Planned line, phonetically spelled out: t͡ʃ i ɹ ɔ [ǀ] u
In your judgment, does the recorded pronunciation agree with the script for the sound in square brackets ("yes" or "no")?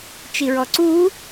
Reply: yes